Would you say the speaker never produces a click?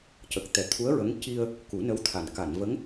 yes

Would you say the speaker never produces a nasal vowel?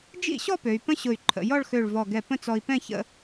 no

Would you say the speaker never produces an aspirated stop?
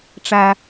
yes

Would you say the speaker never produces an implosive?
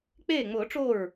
yes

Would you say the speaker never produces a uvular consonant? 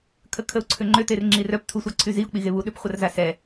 no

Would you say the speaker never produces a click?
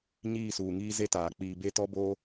yes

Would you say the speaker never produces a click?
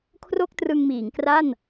yes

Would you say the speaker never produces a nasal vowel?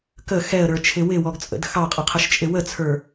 yes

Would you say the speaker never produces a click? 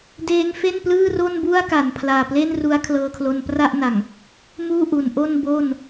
yes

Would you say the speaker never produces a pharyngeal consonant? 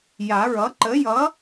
yes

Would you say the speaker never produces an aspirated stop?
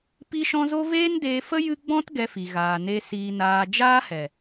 yes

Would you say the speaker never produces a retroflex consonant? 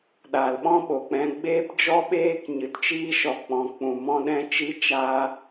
yes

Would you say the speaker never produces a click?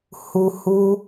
yes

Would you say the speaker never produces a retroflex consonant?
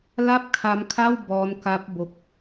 yes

